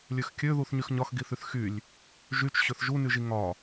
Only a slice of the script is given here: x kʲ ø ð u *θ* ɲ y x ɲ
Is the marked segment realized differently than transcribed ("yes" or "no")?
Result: no